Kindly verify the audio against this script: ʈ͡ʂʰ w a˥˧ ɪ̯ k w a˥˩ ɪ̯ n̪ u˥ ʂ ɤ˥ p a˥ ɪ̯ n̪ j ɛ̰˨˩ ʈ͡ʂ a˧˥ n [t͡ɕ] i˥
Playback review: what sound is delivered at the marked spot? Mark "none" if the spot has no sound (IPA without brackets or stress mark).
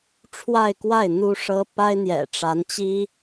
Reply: t͡ɕ